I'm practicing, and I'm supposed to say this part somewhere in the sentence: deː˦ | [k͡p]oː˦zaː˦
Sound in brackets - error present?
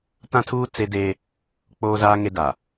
no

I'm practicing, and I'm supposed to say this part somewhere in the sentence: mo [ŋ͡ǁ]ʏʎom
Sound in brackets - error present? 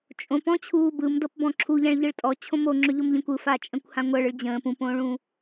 no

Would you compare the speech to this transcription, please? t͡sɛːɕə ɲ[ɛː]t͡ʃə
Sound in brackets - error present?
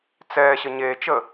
yes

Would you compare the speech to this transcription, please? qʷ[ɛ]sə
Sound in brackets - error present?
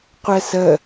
no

